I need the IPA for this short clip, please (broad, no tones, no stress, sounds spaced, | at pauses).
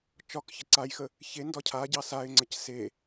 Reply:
t͡ʃ ɒ k ç ə ǀ a j x ə | ç e n d ɒ cʰ a ɟ ɑ s a ɪ̯ ŋ͡ǀ ə c s e